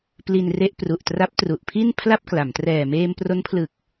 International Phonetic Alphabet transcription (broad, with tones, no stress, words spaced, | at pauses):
pli˧nre˦˥ʔ pru˨˩ʔtra˦˥p̚ tru˨˩ʔpʰi˥˩n pʰla˥˩p̚ kla˩˦m trɛː˨˩meː˧mpro˦˥npʰlɯ˨˩k̚